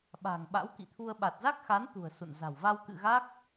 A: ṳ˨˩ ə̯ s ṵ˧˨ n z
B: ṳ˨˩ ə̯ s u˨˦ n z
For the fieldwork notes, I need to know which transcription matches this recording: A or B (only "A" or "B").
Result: A